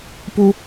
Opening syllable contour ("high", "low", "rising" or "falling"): high